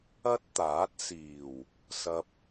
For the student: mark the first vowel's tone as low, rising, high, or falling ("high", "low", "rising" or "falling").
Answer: high